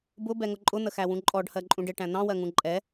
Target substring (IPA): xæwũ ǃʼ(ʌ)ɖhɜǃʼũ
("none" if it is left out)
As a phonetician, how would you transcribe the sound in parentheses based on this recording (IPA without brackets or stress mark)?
ɔ